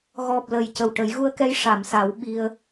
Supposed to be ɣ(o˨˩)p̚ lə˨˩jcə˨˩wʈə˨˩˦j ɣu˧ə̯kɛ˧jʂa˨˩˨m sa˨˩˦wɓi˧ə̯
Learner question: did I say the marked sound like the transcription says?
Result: no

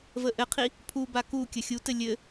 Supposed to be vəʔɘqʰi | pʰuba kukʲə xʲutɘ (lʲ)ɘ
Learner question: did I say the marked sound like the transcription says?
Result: yes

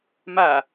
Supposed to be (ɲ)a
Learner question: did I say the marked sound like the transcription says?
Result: no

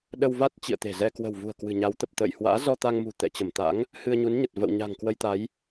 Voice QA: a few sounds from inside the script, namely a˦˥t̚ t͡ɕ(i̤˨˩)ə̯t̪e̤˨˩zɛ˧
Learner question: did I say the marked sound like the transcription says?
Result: no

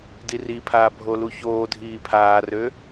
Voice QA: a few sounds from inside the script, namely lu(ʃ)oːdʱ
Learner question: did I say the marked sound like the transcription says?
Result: no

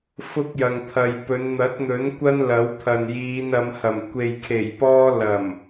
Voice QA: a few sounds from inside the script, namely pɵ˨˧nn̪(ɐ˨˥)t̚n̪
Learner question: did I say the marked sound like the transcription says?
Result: yes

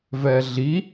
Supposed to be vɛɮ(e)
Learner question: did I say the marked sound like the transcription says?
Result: no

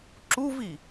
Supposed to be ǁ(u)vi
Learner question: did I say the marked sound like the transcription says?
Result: yes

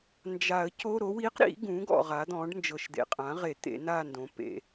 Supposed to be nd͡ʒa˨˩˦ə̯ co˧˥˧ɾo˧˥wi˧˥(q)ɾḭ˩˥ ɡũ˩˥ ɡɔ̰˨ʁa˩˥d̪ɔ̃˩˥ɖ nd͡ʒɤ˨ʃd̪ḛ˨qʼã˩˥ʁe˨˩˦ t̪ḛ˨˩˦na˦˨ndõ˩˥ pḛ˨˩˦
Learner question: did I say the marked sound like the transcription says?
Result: yes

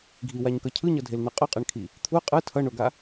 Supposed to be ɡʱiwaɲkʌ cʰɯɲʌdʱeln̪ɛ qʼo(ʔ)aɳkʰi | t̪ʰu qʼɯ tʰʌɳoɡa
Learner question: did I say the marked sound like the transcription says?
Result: no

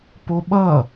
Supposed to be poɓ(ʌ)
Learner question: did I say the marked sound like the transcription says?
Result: yes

